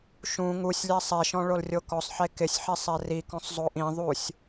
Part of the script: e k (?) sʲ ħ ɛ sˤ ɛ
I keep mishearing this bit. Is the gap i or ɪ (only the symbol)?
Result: ɪ